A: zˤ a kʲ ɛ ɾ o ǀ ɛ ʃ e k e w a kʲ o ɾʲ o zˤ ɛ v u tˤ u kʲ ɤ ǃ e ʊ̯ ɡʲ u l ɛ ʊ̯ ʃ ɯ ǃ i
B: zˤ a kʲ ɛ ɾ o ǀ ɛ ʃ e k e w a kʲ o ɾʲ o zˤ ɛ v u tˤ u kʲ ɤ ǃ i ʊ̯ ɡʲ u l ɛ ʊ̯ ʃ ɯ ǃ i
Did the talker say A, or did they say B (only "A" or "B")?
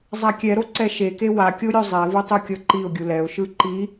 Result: B